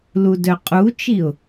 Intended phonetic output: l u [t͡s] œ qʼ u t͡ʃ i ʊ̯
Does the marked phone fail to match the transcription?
yes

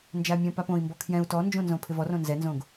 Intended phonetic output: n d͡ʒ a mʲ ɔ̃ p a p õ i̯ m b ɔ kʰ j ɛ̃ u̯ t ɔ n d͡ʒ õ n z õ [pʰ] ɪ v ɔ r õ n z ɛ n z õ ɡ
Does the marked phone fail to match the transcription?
no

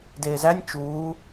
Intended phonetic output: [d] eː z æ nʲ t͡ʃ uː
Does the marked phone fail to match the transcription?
no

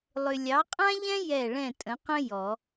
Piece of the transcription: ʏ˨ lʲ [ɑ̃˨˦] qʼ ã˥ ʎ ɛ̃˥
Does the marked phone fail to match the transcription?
yes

